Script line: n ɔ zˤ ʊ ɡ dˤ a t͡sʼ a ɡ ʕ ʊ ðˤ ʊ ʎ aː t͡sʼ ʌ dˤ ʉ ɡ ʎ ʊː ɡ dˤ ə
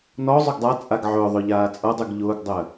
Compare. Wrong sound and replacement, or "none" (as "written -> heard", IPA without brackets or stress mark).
none